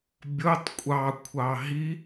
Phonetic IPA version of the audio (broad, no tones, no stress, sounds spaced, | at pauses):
bʲ o tˤ kʷʼ ɑ kʷʰ ɑ ɦ i